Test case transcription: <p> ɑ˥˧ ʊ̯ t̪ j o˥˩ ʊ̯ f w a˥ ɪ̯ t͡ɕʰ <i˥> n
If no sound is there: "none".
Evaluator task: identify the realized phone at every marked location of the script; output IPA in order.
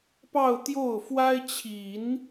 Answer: p, i˨˩˦

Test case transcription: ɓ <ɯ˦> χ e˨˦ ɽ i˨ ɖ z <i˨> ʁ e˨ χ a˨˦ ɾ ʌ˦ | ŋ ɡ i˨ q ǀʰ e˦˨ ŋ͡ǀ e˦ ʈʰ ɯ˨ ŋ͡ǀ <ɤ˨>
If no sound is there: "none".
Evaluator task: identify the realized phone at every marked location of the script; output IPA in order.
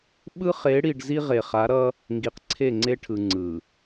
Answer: ɯ˦, i˦, ɯ˨

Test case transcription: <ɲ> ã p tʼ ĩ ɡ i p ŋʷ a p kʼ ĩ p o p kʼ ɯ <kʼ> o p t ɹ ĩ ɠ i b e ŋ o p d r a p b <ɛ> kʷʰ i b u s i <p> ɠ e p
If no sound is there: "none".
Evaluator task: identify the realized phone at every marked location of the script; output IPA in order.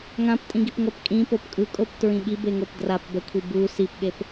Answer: ŋ, kʼ, ɛ, p

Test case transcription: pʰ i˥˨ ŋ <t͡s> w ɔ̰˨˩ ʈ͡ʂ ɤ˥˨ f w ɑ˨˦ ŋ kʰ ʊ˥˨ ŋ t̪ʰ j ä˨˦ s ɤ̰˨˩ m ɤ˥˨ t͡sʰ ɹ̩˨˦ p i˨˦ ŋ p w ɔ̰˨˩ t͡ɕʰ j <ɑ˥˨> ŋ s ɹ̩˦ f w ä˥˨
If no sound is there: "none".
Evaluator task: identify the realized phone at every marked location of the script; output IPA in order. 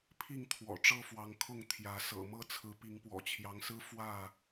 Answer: t̪ʰ, ɑ˨˦

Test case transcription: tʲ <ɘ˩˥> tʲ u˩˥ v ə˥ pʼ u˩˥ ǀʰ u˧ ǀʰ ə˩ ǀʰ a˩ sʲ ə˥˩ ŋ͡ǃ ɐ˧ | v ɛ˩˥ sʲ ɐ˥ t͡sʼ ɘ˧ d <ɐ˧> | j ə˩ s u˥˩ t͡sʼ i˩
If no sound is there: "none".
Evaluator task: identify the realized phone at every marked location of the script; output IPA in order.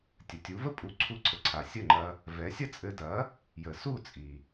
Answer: ɘ˩, ɐ˩˥

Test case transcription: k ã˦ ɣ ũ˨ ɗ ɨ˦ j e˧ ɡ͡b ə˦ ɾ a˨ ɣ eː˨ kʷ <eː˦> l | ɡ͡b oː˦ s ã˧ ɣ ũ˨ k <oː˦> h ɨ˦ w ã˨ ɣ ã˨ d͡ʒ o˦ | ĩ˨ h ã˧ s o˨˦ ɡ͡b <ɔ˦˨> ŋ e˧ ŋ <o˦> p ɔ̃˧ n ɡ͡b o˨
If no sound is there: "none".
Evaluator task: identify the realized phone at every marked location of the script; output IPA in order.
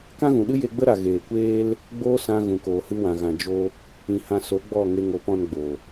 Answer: eː˦, oː˨, ɔ˦˨, o˨˦

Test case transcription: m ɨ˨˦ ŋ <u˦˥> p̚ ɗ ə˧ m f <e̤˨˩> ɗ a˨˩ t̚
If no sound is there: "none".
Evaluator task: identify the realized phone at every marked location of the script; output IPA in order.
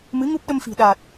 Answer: u˦˥, i̤˨˩

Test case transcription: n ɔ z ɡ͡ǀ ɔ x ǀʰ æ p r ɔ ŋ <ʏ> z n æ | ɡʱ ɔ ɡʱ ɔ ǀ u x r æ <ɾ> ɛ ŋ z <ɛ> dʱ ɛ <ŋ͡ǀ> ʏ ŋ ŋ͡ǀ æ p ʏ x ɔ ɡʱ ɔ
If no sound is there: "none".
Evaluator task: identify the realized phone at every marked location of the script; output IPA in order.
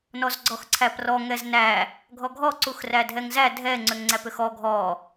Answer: ɛ, dʱ, æ, ŋ͡ǀ

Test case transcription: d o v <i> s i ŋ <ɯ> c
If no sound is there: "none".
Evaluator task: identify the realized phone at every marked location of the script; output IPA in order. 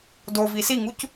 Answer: i, u

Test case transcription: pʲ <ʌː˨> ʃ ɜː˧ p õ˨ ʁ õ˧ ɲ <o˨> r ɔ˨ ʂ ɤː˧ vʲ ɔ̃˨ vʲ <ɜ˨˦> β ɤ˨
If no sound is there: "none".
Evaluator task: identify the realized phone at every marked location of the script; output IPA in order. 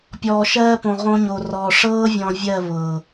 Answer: ɔː˨, o˨, ɜ˦˨

